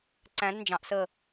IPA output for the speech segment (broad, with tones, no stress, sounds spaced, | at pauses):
ǀ æ̃˨˦ d n d͡ʒ ɑ̃˨ ʔ s ə˦˨